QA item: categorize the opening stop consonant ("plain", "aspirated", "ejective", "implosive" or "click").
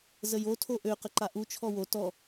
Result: aspirated